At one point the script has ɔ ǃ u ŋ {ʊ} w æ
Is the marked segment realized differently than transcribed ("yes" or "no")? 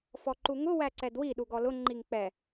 no